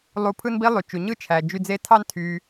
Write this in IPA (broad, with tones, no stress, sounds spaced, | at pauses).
lˠ u˧ pʰ ɯ˦ n b i˦ lˠ y˨ t͡ʃ u˨ ɲ ɯ˦ t͡ʃʰ æ˨ d͡ʒ y˧ d͡z e˦ tʰ ɑ˦ n tʰ y˧